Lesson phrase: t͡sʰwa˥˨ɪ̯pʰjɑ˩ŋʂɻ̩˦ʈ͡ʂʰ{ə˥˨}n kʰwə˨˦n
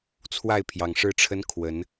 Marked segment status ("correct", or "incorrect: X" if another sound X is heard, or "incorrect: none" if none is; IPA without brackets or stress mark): incorrect: ə˦